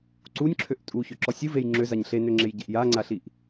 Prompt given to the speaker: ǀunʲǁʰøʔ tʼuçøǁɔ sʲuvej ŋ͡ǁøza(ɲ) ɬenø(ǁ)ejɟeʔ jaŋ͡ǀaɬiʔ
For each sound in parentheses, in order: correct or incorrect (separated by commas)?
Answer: correct, incorrect